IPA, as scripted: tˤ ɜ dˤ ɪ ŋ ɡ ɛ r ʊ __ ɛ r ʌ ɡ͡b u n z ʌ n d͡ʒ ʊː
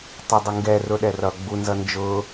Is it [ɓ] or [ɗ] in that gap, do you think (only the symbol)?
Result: ɗ